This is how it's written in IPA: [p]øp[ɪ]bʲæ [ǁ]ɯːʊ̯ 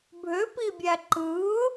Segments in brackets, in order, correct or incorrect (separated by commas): incorrect, incorrect, incorrect